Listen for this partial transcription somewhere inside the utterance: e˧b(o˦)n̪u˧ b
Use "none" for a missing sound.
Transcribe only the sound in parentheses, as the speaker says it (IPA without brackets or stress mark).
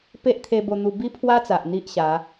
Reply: o˧